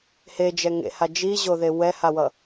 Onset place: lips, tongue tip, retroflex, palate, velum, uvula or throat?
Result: throat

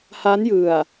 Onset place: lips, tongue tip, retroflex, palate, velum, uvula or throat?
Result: throat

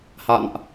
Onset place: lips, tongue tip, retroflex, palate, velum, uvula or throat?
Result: throat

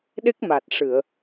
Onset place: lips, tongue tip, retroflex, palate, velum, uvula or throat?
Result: tongue tip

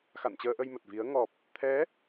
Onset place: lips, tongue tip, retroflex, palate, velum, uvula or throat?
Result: velum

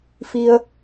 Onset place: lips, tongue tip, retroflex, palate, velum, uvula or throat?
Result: lips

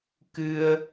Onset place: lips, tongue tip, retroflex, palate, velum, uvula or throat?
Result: velum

